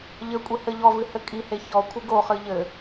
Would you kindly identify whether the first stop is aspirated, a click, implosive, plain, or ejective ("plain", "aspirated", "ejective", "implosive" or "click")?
ejective